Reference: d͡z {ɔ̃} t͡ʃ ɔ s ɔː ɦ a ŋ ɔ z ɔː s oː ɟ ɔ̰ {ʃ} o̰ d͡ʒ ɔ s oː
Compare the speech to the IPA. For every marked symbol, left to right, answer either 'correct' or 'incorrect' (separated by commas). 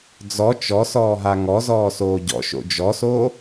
incorrect, correct